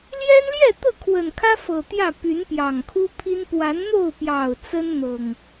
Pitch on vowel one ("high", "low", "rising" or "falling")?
high